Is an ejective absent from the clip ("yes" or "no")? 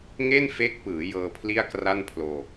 yes